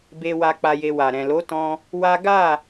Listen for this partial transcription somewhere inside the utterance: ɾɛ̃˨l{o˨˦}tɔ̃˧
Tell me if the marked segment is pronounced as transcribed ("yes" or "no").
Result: yes